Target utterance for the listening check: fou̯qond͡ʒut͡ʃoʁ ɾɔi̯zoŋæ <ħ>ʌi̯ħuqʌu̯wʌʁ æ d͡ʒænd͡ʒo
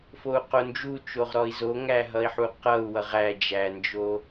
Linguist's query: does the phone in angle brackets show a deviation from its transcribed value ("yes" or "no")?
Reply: yes